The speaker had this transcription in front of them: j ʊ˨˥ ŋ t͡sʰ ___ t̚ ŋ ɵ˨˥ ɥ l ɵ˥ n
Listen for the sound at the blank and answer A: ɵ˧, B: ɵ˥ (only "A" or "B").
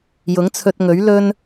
A